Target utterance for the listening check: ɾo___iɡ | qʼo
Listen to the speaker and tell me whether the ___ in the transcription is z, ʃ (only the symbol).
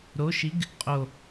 ʃ